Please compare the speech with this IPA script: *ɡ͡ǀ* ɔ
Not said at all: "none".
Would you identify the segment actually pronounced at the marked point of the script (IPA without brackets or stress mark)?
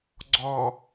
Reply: ɡ͡ǀ